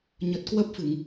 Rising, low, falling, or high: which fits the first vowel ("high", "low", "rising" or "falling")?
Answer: low